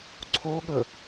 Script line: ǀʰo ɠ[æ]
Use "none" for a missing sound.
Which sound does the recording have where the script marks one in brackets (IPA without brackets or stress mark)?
ə